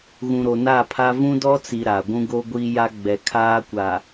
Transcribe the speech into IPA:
ɣ ũ˨ ɾ o˨ n a˦˨ pʰ a˦ v ũ˦ d ɔ˦ t͡s i˨ ɾ a˨ ɡʷ ũ˦ ɡ o˦ ɡʷ i˦ j a˦ ɡ͡b ɛ˨˦ kʰ aː˦ kʷ a˨

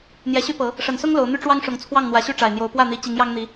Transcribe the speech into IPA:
n̪ j ɛ˨˦ ɕ y˦ p ɤ˨˦ | ʂ ə˨˩ n s ʊ˦ ŋ l o˨˦ ʊ̯ n̪ y˦ ʈ͡ʂ w ɑ˦ ŋ ʂ ʊ˨˩ ŋ t͡sʰ w ɑ˥˨ ŋ n̪ w ä˨˦ ɕ y˦ ʈ͡ʂ a˨˩ ɪ̯ n̪ j o˨˦ ʊ̯ p w ä˥˨ n̪ i˨˦ t͡ɕ i˨˦ ŋ j ɑ˦ ŋ n̪ i˨˦

